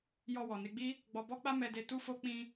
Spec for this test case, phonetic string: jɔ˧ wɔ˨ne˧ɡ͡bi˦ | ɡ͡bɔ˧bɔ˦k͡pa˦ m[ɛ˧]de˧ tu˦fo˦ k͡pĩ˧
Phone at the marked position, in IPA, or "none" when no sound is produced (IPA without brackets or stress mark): ɛ˧